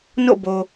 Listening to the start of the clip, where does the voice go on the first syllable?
falling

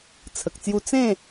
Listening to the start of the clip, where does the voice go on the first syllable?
low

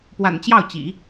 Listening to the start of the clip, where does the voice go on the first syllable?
low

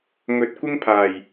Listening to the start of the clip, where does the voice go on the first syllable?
low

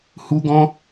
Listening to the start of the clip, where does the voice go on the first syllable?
high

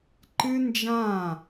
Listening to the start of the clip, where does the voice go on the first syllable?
high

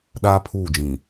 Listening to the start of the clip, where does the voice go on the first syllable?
high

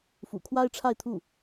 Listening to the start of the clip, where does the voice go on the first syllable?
low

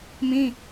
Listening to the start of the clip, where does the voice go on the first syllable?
high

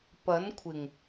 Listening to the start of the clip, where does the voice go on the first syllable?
rising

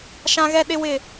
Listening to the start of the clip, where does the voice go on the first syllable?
high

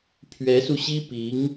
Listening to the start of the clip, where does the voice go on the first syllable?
rising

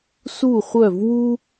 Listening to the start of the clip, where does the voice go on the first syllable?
falling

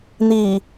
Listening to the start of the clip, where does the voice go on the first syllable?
low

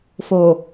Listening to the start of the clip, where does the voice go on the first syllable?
low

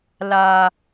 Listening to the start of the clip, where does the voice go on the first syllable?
high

